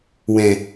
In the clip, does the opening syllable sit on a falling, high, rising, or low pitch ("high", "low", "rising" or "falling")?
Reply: low